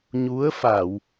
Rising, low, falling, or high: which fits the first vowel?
rising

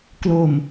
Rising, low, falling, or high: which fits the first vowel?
low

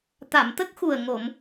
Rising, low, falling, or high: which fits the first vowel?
low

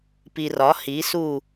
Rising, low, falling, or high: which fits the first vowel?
low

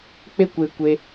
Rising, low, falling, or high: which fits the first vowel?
high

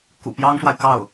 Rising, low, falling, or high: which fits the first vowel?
low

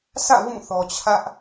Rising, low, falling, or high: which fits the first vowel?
falling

